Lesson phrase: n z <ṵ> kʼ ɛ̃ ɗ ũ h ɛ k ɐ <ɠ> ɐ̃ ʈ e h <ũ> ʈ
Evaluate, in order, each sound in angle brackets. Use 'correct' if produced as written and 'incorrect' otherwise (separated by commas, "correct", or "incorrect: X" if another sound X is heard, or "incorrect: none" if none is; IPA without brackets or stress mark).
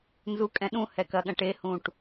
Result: incorrect: u, correct, correct